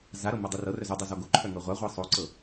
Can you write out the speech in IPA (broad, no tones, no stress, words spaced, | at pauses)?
zaɾɤ mɤdˤerɤrœ zudˤo zɔɡoǃʰœ ŋɤʁʷaʁʷɤ sˤoǀɤ